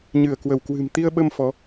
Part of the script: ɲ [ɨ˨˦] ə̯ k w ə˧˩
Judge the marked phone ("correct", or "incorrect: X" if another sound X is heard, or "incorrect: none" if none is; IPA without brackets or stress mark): incorrect: ɨ˧˩